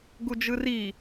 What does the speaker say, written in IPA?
ɡud͡ʒɯri

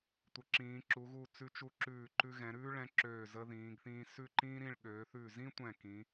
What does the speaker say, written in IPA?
tʷə˩˧ǁĩː˩˧ǁu˩˧ɣu˧˩ t͡sʉ˧t͡ʃu˧ǁʉː˧˩ǃʉ˧ ɣɛ̃˩˧ɾʉː˥ɭɛ̃˧ǁøː˧˩ zə˧ðĩː˩˧ɡθĩː˧ sʉ˥˧ǃĩː˥ɾĩ˥˧ɭ ɠøː˩˧θʉ˧˩zĩ˥tʷɛ̃˧˩ kĩ˩˧

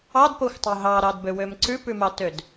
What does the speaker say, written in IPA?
ɑdpoxʷtˤo ɦɑɾɑdbøwøm ǀʉpʉmɑtød

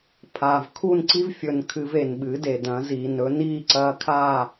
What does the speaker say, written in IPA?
pʰaː˨vkʰu˦˨nǀi˦v fʲɵ˧n kʰɨ˧ve˨nɓɨ˨˦ de˨ dɐ̃˨˦ziː˨nɵ˦ niː˦˨ǀɐː˧kʰaː˦˨

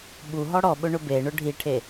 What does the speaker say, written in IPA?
ɓu ɦɔɽɔɓʊ ɳʊbeɳʊ ɖʱiʈʰe

